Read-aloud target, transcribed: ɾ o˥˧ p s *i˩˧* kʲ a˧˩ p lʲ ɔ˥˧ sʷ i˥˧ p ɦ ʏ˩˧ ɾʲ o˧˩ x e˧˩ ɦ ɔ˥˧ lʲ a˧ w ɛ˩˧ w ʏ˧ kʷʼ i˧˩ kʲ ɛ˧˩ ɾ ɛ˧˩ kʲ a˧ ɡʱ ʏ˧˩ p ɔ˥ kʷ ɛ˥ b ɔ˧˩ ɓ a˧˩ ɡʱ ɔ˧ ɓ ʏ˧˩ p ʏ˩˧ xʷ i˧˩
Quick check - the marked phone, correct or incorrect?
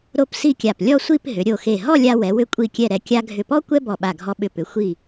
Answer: incorrect